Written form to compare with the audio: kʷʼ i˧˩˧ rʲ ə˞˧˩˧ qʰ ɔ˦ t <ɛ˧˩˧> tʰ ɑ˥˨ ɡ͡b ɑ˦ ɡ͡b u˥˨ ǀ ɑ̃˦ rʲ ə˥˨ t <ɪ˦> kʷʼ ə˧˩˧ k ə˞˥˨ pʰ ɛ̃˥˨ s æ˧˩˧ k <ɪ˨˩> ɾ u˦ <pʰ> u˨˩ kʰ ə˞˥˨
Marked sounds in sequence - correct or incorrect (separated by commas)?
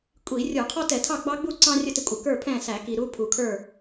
correct, correct, incorrect, correct